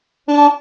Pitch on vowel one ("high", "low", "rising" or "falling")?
high